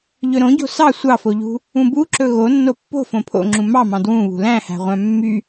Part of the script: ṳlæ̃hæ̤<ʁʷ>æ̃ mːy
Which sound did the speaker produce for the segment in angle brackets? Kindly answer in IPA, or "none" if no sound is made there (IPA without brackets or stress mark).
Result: ʁʷ